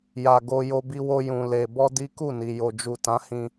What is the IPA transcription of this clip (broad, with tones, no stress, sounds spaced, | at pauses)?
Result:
j a˨ ɡ o˧ j o˧ b i˧ w o˧ j ũ˨ l e˨ b ɔ˧ d i˦ k u˦˨ n i˨ j o˨ d͡ʒ u˨ t ã˨˦ h ĩ˧